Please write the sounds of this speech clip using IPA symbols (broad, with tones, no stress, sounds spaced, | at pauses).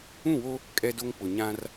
ũ˦˨ w o˦ | kʼ ɛ˦ d o˦ ŋ k͡p ʊ˨ ɲ ã˦ r